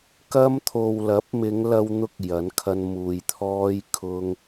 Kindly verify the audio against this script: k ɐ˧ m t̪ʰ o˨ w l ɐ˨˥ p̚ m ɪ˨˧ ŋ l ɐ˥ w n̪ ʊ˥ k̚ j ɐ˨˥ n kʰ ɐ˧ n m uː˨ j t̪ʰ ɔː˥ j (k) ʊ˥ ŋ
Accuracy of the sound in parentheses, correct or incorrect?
incorrect: kʰ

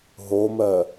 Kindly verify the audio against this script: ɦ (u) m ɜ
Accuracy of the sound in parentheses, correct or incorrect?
incorrect: o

